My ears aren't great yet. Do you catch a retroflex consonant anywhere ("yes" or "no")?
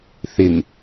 no